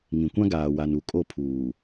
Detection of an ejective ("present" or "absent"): present